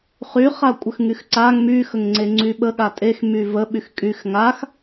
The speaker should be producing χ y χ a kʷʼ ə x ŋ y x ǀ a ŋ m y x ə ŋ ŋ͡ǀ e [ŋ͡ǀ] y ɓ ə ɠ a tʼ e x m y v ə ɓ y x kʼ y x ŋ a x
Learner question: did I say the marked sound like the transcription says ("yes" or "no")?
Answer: yes